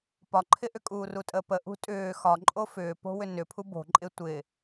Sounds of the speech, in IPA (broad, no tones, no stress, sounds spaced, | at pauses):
p ɒ ǃʰ ɪ ʔ ʏ kʼ uː r u tʼ ə p ə ʔ ṳ tʼ ʏː x ɒ ǃʼ o f ʏː p o̤ w ʏ n ʏ pʰ u b o̤ ǃʼ ɪ tʷ ɪ